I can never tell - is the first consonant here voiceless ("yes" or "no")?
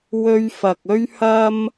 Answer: no